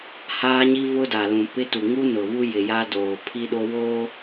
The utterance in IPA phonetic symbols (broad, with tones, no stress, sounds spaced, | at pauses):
h aː˦ ɲ i˦ v ʊ˦ d a˨ l ũ˨ p ɪ˦ t u˨ ŋ u˦ n ʊ˨ β u˦ j ɪ˨ j a˦ d oː˨ pʰ i˦ ɗ o˦ w oː˦